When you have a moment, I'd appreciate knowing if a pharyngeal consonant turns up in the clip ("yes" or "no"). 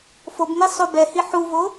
yes